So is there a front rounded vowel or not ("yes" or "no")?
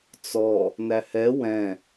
no